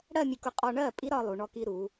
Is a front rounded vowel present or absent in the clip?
absent